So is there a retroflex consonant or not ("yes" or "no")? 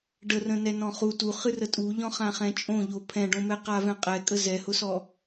yes